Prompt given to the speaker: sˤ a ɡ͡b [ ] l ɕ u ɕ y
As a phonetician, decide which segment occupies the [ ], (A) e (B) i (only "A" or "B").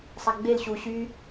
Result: A